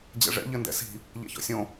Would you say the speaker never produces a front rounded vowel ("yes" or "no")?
yes